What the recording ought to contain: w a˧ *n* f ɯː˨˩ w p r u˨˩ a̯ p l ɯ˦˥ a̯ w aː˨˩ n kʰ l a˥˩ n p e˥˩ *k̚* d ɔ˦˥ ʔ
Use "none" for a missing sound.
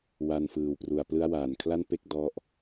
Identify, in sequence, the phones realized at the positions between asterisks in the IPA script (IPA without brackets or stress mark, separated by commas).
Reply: n, k̚